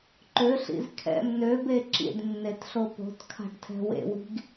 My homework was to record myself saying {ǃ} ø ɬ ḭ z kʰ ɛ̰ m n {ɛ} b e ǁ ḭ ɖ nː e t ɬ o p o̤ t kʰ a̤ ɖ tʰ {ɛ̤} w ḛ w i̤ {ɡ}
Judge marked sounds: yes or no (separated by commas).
yes, no, yes, yes